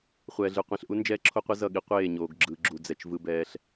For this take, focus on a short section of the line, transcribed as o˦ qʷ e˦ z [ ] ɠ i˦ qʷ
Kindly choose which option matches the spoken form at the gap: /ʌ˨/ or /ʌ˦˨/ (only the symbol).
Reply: ʌ˦˨